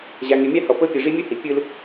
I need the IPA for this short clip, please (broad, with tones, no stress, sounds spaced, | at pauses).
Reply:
ʑ a˨ ŋ e˨ mʲ a˦ h ɔ˨ p ɤ˦ pʲ ɯ˨ ʐ i˦ mʲ u˦ h i˨ pʲ ɯ˦ l